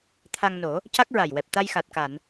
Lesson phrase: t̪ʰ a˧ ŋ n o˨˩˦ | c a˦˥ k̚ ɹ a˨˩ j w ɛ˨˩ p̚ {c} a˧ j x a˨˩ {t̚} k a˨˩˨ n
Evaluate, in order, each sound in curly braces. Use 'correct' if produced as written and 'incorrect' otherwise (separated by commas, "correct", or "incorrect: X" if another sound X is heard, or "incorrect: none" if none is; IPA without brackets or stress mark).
incorrect: t̪, correct